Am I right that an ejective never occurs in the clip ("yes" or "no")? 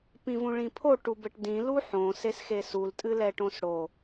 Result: no